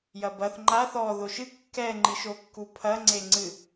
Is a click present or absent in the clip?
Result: present